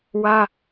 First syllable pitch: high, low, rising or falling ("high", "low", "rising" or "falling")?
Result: high